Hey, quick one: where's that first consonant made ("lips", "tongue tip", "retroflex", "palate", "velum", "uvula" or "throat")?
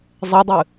tongue tip